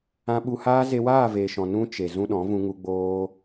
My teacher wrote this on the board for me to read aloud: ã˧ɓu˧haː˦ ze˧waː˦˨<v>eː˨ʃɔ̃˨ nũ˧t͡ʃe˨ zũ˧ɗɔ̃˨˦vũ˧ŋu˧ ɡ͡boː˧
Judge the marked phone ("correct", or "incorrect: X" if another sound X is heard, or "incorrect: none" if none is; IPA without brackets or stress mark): correct